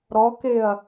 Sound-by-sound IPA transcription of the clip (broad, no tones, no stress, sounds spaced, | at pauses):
ɾ ɔ k e ɐ̯